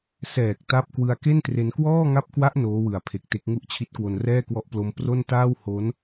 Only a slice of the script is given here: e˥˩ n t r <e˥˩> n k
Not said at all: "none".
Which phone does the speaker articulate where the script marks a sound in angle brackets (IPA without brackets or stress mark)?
e˧